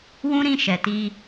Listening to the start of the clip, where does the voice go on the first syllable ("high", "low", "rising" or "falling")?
high